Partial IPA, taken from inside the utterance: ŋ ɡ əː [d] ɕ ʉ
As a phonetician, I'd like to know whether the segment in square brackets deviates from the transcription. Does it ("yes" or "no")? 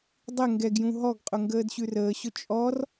no